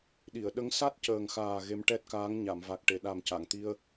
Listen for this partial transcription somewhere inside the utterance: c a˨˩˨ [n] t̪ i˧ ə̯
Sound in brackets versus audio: incorrect: ŋ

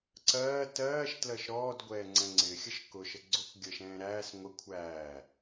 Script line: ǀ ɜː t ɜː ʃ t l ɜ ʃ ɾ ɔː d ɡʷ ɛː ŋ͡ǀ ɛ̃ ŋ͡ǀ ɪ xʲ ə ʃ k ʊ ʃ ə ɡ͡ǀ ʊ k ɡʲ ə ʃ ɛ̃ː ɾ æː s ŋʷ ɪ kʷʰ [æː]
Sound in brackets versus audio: correct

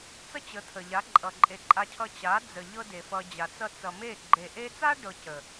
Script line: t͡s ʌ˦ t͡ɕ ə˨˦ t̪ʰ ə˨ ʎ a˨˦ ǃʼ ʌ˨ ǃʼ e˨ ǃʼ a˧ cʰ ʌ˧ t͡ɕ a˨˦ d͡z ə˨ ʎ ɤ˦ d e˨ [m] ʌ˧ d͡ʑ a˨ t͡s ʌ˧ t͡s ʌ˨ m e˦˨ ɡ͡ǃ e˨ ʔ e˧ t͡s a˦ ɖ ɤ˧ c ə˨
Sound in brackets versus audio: incorrect: f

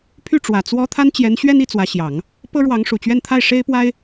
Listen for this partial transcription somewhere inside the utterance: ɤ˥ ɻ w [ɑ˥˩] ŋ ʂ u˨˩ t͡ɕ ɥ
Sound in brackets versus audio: incorrect: ɑ˧˥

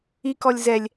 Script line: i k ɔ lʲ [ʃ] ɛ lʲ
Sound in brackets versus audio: incorrect: z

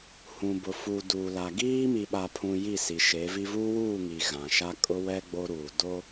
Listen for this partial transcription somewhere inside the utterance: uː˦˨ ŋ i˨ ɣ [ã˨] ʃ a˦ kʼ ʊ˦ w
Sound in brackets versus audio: correct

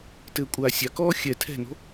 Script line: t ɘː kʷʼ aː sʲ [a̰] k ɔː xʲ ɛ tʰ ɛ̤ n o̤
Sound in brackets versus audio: incorrect: a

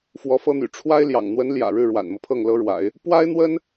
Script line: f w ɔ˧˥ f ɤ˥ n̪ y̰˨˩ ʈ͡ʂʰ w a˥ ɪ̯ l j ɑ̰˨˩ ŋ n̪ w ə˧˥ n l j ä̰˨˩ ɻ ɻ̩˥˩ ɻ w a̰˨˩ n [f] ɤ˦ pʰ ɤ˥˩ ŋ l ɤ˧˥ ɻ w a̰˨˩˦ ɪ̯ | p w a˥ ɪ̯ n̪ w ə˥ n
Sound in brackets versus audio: incorrect: m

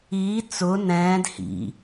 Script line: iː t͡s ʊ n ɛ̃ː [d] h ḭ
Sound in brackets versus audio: correct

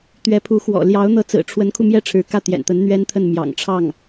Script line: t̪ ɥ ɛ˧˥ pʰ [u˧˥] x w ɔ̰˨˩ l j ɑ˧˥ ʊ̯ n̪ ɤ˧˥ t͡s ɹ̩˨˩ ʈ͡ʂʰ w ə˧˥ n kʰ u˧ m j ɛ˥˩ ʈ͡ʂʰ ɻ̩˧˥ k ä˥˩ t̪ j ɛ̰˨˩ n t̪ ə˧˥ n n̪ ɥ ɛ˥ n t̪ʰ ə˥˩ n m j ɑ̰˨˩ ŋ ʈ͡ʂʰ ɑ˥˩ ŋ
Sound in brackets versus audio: correct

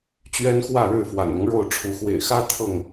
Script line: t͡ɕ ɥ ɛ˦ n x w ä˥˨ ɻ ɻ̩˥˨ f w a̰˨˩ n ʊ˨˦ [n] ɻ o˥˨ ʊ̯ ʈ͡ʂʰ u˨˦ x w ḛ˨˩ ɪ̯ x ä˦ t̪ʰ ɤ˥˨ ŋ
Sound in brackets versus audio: incorrect: ŋ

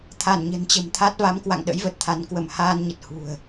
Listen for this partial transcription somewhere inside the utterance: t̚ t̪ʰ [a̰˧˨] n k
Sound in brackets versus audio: incorrect: a˨˦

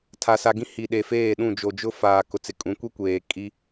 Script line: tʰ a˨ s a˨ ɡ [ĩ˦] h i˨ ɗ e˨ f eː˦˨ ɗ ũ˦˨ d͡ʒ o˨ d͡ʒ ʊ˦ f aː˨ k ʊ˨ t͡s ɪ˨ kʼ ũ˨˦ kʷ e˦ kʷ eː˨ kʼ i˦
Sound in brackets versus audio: correct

